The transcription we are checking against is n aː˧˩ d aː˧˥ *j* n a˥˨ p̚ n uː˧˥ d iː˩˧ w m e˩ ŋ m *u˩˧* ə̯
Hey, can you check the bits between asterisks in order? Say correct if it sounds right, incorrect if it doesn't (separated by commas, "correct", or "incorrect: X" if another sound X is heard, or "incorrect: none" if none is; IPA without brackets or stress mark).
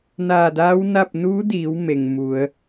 incorrect: w, correct